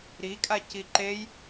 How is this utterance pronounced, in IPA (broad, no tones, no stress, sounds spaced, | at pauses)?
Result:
ɾ i kʼ a c i ǃ e j